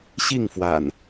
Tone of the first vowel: falling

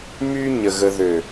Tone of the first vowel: high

